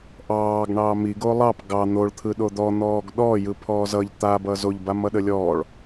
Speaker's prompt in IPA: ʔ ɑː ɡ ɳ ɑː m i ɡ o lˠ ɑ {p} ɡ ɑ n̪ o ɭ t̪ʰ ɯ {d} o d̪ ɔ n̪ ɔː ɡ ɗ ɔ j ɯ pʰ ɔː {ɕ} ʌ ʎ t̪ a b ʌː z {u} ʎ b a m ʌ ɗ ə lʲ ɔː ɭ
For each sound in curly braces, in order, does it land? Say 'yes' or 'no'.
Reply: yes, no, no, no

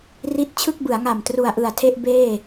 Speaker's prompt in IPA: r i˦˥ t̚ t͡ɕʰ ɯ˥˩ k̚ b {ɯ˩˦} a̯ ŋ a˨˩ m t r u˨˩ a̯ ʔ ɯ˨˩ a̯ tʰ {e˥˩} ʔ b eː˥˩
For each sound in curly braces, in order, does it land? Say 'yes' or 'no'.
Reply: yes, yes

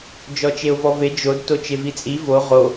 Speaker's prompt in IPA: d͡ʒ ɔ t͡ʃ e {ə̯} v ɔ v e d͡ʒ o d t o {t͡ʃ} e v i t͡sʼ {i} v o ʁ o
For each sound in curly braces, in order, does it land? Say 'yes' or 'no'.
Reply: no, yes, yes

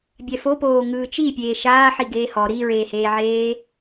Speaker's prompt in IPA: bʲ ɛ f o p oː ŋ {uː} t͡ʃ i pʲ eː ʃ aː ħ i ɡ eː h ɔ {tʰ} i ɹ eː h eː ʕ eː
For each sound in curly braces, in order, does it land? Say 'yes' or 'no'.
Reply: no, no

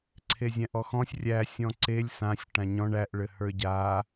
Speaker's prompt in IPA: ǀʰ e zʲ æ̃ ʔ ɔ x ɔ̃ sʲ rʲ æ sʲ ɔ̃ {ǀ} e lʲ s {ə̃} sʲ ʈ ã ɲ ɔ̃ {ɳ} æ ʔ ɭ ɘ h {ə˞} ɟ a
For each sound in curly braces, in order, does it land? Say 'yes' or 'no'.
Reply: yes, no, yes, yes

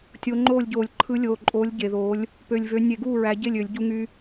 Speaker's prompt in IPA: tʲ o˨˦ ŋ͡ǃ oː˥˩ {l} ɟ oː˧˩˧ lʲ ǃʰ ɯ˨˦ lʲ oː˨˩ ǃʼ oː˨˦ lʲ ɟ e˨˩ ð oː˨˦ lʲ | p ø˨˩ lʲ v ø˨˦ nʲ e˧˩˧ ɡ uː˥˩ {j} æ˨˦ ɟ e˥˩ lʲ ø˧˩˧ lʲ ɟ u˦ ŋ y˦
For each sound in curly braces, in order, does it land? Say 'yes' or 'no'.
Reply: no, no

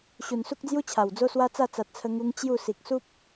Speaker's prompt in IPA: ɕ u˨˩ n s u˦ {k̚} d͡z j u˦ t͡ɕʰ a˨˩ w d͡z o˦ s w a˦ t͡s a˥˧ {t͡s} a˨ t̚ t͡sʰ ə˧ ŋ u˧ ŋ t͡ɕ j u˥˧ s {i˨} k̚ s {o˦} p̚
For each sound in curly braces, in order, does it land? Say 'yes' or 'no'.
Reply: yes, yes, yes, no

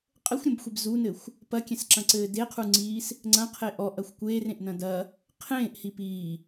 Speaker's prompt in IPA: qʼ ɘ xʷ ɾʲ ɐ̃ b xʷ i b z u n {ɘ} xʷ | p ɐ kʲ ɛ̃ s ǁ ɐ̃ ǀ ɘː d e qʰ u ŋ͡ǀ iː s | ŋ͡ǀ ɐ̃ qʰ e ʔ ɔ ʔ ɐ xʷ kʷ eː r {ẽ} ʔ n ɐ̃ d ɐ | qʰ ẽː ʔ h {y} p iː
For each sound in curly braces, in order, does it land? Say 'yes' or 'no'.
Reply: yes, yes, no

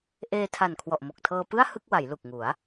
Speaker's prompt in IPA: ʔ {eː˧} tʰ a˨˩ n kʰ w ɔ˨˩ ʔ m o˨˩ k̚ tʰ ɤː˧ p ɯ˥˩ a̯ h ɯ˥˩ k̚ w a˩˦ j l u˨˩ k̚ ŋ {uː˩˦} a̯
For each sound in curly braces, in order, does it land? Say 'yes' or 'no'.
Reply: yes, no

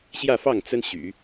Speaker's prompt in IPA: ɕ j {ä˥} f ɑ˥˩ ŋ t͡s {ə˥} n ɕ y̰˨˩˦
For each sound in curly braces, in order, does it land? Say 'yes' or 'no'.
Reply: no, yes

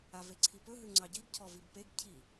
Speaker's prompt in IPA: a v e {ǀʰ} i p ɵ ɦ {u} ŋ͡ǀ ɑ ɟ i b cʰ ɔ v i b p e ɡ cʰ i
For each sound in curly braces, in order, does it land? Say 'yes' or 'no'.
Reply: yes, no

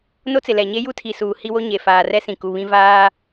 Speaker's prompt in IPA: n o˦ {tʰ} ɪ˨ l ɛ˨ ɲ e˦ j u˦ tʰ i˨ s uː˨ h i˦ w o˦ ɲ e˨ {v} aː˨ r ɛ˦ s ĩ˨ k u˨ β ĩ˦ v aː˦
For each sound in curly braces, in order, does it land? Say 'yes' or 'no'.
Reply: no, no

